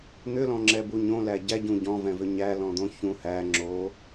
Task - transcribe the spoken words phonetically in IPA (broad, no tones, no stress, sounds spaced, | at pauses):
n̪ ʏ l ɔ̃ ŋ͡ǁ ɛ b u ɲ õ l æ ɟ æ ɟ ũ ɟ ɔ̃ v ɛ̃ v ʏ ɲ æ l ɔ̃ d̪ õ ç ũ h æ ŋ͡ǁ o